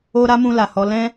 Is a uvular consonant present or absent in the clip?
absent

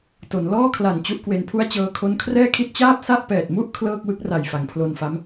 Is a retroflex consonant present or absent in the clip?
absent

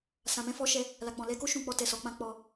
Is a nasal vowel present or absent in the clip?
present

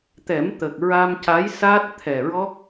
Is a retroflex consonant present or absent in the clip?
absent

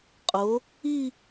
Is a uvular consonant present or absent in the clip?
present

